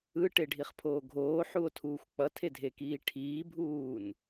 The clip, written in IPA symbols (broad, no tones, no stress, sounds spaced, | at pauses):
ɯ ʈ e ɖʱ i χ pʰ oː ɡʱ oː ħ u o̯ tʰ uː xʷ k͡p ʌ tʰ e dʱ e k iː ʈʰ iː bʱ uː n